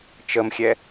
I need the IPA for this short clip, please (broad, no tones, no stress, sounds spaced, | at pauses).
t͡ʃ ə m xʲ ɛ